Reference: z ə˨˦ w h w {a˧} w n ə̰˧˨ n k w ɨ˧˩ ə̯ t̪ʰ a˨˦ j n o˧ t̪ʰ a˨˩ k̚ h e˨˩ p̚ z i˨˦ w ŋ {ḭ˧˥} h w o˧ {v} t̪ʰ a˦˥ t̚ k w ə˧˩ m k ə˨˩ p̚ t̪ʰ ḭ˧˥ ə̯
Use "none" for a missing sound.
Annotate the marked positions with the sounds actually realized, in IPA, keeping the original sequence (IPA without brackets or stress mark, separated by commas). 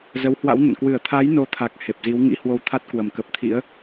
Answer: a̰˧˥, ḭ˧˥, w